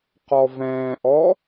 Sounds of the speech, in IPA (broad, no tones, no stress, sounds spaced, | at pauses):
q ɔ v ɛ̃ː ʔ ɔ